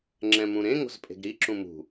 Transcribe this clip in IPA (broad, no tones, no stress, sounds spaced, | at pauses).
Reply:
ŋ͡ǁ ɛ̃ m ũ ɾ ẽ ŋ o̤ z pʼ e̤ ɡ ɾ i ǁ ũ m ṳ